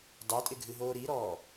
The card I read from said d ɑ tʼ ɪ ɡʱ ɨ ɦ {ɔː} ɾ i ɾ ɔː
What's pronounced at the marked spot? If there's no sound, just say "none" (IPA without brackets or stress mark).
oː